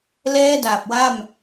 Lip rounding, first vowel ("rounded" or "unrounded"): unrounded